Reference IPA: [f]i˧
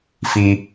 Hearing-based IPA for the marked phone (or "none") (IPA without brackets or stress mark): f